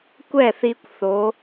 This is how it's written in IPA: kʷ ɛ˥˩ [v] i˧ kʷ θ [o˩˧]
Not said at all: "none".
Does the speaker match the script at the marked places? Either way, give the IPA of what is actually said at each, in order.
θ, o˩˧

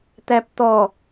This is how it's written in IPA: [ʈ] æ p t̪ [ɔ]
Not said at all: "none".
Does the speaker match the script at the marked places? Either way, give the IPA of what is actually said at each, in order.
t̪, ɔ

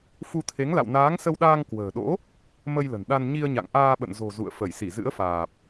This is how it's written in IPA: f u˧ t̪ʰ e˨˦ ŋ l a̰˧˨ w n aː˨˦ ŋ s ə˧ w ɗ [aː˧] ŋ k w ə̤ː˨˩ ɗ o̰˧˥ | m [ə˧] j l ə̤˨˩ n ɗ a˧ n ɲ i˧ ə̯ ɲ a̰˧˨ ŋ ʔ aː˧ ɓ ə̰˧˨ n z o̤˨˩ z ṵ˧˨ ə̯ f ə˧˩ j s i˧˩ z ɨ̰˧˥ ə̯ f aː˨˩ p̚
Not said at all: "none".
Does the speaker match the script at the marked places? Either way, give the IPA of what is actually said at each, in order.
aː˧, ə˧

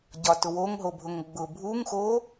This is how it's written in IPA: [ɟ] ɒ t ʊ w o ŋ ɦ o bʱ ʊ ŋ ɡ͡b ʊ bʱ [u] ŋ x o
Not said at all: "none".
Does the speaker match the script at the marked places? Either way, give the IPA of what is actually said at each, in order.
ɟ, u

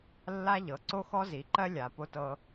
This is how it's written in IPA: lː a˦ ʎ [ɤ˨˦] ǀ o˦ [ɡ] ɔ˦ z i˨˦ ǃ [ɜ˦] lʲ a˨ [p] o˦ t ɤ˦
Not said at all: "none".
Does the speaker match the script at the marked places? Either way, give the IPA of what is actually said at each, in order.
ɤ˨˦, x, ɜ˦, p

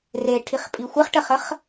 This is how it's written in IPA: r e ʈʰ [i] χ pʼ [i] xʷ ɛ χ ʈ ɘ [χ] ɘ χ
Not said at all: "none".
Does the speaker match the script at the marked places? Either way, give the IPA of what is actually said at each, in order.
i, i, χ

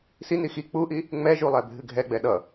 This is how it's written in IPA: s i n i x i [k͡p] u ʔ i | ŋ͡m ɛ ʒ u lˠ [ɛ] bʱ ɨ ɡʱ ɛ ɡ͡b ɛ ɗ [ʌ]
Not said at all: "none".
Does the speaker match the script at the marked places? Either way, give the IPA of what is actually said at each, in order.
k͡p, ɛ, ʌ

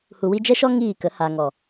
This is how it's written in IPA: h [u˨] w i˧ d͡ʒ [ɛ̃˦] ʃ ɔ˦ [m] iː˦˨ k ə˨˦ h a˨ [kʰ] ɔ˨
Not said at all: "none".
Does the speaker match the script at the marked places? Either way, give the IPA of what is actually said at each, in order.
u˨, ɛ˦, ŋ, ŋ

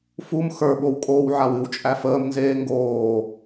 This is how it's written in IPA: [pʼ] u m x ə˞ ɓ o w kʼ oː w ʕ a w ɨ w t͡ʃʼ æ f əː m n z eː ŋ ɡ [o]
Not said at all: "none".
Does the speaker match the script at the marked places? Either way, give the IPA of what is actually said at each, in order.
f, oː

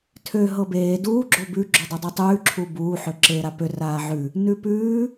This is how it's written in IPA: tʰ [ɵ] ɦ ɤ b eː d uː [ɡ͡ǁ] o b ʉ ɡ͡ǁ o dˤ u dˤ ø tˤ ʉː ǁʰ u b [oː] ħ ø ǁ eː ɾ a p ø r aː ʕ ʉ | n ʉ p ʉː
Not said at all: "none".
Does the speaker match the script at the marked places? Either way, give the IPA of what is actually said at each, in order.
ø, ɡ͡ǁ, uː

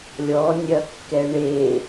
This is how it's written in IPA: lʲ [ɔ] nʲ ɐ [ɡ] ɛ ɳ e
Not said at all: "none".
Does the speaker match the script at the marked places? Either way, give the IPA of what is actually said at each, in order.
ɔ, kː

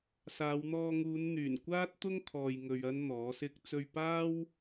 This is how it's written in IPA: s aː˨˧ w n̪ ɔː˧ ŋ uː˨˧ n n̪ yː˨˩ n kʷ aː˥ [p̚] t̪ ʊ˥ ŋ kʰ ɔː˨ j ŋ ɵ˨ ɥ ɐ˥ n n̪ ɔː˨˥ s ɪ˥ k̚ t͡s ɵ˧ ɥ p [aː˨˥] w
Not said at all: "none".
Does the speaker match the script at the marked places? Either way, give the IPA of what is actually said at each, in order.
t̚, aː˥

